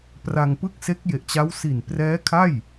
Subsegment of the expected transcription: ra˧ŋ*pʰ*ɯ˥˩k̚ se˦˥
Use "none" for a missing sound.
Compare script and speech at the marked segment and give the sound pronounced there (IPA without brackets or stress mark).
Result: p